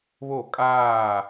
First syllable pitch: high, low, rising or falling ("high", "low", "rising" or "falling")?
falling